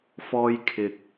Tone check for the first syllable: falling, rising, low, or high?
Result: high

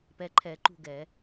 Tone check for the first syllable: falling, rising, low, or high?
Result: low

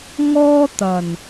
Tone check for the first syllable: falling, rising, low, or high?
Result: high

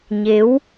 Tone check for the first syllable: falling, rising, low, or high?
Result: rising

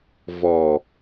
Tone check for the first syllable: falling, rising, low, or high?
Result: low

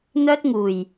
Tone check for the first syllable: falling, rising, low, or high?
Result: high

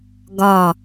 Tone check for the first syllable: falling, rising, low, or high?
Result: falling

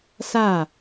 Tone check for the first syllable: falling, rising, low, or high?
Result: falling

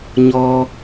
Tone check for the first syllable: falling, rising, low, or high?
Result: high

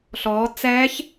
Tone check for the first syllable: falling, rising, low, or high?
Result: rising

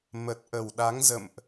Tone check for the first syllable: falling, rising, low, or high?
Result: low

